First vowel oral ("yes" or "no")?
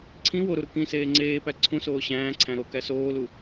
no